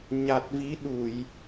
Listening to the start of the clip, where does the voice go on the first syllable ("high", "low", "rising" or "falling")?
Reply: low